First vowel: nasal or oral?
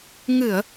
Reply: oral